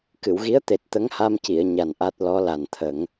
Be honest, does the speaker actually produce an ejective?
no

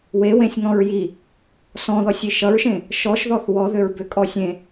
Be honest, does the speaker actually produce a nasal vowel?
yes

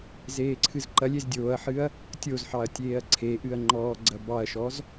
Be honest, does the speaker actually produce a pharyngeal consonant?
yes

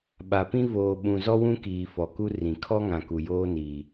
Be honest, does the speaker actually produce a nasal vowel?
yes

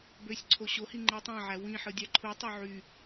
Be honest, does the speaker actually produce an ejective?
no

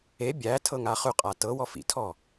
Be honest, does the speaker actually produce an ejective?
yes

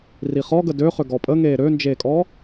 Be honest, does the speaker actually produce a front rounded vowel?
yes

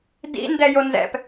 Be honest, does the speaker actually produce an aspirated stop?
no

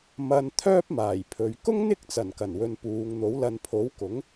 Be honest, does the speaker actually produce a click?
no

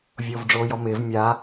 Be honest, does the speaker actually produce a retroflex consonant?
yes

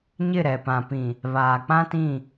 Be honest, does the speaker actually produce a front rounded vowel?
no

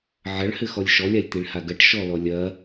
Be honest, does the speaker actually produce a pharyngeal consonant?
yes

